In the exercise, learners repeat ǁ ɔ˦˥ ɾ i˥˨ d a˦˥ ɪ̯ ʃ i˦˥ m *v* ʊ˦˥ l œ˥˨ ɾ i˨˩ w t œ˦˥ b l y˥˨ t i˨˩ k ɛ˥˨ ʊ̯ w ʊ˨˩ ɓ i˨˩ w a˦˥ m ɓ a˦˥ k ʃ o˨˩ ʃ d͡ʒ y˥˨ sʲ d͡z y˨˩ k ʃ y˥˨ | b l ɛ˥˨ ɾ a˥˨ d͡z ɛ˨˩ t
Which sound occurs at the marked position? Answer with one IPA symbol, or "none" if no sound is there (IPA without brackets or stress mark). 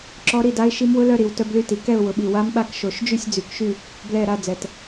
w